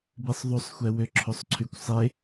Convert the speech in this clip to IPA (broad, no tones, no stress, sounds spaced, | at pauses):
b i sˤ ðˤ u sˤ xʷ ɛ w ø ǁʰ o sˤ ǀʰ y kʷ sˤ e